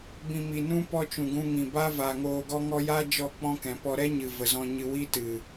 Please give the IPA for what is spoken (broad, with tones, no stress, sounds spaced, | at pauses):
b ĩ˨ m i˨ n ũ˦ p ɔ˧ t͡ʃ ũ˨ ɡ ũ˧ ŋ ĩ˨ b a˦ v a˨ ŋ oː˧ ɡ ɔ˦ ŋ ɔ˦ j a˦ d͡ʒ ɔ˦˨ k͡p ɔ̃˦ k ɛ̃˨ p ɔ˧ ɾ ɛ˦ ɲ ɨ˨ v ə˨ z ɔ̃˧ ɲ ɨ˧ w i˦ t ɨ˨